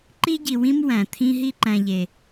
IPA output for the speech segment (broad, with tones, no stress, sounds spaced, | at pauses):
ǃ i˥ ɟ i˨ w ĩ˥ m w æ̃˩ t̪ʰ ĩ˦ ɦ i˥ ǃ æ̃˨ ʎ e˩